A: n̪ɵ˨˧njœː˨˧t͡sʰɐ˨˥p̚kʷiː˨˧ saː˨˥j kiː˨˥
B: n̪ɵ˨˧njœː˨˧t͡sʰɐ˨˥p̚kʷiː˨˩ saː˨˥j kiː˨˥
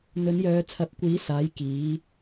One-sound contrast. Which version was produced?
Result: A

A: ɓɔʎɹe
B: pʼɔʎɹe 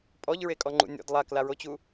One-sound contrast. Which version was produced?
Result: B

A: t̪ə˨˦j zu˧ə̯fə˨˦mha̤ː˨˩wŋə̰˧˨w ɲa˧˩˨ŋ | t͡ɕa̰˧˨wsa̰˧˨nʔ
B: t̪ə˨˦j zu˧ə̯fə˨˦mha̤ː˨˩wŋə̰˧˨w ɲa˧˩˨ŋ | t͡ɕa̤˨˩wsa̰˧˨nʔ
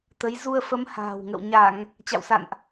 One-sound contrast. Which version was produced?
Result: A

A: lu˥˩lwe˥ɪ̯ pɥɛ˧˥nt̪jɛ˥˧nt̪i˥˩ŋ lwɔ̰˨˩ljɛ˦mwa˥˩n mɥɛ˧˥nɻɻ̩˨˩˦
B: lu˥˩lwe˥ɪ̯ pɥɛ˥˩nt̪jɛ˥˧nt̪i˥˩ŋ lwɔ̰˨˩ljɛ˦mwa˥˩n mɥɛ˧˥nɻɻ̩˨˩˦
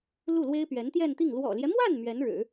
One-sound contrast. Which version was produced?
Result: A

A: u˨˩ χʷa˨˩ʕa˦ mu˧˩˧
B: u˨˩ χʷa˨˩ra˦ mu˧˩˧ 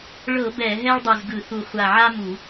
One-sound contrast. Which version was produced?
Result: A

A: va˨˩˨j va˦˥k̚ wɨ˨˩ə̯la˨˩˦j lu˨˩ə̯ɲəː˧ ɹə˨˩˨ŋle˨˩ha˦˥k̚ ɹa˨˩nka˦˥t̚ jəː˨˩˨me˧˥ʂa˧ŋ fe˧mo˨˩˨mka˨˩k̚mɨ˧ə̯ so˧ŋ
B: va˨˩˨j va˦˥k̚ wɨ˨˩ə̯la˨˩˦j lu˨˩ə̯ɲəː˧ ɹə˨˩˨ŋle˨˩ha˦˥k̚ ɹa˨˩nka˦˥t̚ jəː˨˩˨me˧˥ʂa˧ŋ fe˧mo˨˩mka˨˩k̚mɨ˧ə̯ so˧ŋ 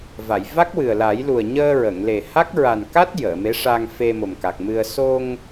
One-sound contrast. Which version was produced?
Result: B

